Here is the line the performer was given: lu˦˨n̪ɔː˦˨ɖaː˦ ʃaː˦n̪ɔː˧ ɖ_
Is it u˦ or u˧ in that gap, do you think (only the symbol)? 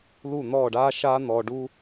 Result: u˦